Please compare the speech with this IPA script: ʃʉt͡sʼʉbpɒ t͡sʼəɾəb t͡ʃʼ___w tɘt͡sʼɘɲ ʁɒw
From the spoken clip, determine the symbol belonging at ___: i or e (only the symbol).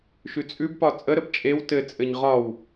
e